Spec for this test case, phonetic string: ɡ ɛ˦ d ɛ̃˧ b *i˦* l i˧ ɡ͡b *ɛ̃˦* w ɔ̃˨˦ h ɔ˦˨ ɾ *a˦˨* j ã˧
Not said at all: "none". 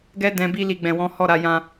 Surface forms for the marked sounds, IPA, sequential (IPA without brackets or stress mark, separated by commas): i˦, ɛ̃˨, a˨˦